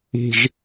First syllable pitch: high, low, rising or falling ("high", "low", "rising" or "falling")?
low